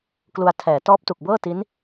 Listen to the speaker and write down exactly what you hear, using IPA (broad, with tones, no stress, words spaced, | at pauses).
klu˧a̯ tʰɛː˩˦ tɔː˦˥p̚tu˨˩k̚bɤː˥˩ ti˦˥n